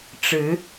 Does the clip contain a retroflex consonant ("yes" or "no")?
yes